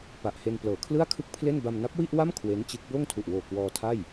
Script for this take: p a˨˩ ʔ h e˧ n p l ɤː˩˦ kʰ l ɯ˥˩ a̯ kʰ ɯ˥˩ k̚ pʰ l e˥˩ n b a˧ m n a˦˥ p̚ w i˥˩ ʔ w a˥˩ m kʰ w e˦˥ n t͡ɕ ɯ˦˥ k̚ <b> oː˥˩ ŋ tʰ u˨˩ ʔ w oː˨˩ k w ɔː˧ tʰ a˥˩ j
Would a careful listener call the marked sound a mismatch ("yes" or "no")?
no